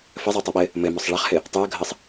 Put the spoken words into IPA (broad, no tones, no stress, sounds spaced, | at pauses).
f ə zˤ o tˤ ʉ ɓ ɘ | m ɘ m ɔ sˤ ɭ ɐ χ h ɘ | tˤ u ə̯ ɡʱ ə sˤ